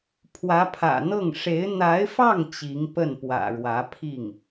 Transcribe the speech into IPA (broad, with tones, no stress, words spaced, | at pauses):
pʰwä˧˥pʰä̰˨˩n̪ɤ˥˩ŋ ʂe˧˥ɪ̯ n̪a˧˥ɪ̯fɑ˥˩ŋ t͡ɕi˧˥ŋpə˥˩npwä̰˨˩ɻwä˧˥ pʰi˥˩ŋ